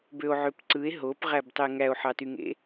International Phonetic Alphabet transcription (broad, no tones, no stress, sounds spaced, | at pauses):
b ø o̯ ʕ ø p ǀ ɯ e̯ ɦ o p ʁ æ b tˤ e ŋ æ o̯ ħ ɑ t y ŋ ḛ